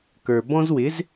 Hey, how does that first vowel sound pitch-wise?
low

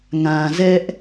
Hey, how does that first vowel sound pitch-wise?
low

